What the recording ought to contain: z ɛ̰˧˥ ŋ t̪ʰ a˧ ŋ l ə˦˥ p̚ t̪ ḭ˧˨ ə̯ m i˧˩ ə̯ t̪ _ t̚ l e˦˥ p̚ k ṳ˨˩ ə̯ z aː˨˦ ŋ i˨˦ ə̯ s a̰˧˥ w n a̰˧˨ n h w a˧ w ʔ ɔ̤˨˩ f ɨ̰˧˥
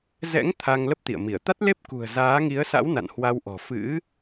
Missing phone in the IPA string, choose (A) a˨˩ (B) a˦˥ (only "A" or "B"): B